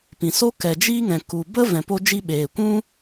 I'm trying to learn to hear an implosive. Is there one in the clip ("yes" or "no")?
yes